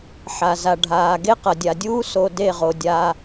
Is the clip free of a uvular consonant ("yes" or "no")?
no